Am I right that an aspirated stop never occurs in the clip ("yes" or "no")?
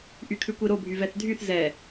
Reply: no